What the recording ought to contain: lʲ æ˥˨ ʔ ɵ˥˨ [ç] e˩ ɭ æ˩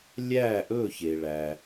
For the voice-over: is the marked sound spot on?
yes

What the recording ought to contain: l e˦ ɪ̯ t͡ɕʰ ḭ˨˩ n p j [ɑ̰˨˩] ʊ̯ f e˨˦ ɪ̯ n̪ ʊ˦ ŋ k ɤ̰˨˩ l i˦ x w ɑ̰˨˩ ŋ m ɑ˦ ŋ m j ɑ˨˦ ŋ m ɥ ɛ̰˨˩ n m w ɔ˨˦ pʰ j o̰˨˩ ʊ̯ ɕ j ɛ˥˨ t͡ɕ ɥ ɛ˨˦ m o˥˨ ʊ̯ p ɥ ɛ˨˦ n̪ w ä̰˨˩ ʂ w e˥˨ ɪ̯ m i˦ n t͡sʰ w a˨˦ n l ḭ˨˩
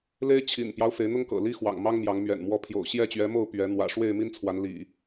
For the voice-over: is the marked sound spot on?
no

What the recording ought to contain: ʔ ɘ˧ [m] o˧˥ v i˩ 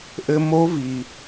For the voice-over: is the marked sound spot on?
yes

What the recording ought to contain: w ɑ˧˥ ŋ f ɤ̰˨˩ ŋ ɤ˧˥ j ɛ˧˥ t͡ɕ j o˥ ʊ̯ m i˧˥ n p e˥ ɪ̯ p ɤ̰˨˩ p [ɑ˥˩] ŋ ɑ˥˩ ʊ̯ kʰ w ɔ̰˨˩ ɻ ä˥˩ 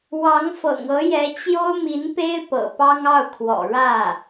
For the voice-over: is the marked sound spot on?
no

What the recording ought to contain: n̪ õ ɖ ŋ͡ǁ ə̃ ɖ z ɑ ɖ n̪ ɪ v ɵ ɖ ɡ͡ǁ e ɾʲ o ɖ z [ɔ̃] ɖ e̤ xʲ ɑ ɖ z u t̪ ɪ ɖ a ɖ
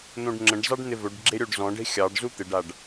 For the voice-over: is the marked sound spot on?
yes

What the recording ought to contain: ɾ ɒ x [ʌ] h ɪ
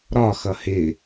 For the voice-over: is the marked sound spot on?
yes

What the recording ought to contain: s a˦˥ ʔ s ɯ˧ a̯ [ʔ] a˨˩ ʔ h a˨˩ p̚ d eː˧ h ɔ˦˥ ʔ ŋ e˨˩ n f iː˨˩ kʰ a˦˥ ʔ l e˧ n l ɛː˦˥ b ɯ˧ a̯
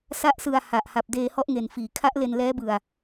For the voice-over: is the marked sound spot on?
no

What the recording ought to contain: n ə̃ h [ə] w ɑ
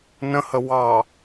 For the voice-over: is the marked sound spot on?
yes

